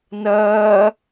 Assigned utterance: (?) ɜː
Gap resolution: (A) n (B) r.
A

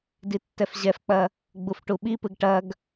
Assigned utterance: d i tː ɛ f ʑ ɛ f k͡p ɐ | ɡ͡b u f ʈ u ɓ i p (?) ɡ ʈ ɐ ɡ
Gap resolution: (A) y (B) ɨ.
B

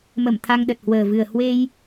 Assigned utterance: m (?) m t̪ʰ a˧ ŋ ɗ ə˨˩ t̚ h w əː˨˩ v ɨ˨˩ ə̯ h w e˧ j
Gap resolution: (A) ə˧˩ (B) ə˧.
A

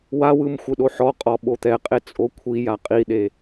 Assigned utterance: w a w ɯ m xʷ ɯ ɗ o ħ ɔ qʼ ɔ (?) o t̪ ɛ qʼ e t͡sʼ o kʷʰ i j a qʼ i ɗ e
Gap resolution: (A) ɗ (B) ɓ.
B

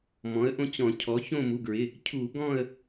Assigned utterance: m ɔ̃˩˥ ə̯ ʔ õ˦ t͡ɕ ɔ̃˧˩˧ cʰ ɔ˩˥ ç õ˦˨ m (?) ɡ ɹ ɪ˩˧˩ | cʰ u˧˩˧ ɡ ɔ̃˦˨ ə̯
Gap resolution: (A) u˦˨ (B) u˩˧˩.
B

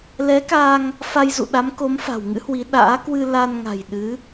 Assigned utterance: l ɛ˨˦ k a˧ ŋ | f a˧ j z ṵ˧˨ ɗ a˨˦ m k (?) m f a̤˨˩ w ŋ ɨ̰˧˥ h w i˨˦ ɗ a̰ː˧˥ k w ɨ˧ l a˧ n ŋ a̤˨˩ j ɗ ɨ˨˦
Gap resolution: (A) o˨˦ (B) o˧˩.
A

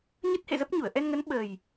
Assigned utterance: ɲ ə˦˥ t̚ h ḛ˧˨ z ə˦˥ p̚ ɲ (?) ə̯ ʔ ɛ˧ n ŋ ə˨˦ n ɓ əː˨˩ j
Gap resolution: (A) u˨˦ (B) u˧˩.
B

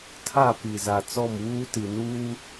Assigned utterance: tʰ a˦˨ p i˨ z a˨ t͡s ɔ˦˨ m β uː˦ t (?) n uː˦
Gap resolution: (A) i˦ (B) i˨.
B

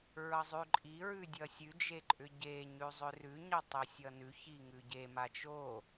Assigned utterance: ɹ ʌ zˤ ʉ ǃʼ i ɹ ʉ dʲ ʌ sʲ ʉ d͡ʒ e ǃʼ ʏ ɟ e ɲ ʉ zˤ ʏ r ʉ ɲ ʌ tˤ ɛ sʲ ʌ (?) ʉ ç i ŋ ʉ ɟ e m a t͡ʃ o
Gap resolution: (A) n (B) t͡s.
A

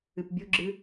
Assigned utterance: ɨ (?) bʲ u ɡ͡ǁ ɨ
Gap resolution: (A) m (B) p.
B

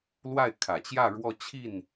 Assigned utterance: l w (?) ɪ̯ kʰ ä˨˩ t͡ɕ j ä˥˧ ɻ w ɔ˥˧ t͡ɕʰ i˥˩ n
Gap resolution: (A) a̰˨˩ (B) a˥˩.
B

